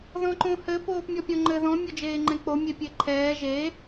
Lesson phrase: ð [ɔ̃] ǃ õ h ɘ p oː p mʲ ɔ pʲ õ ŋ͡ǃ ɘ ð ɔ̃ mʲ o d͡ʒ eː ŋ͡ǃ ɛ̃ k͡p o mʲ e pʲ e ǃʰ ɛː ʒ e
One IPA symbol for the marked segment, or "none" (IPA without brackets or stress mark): ɔ̃